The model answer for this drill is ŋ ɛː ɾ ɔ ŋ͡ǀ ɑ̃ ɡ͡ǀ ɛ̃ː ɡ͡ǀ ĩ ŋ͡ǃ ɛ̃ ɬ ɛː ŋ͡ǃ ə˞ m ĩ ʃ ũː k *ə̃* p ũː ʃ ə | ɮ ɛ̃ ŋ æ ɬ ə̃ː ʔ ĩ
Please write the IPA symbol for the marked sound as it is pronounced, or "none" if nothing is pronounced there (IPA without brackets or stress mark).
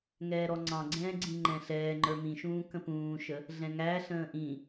ə̃